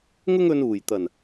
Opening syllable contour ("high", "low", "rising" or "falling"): high